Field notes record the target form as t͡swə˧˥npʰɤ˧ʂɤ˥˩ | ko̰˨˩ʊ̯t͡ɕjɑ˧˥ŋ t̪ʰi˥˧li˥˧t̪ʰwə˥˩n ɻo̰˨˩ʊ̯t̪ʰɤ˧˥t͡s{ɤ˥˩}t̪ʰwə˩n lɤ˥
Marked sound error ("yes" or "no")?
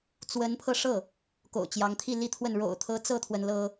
no